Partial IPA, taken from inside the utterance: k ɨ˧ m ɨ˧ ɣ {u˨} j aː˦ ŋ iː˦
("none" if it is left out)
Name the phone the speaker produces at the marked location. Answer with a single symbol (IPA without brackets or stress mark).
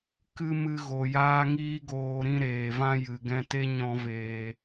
o˨